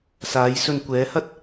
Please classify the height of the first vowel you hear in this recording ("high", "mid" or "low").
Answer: low